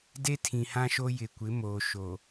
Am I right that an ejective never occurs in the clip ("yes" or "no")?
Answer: yes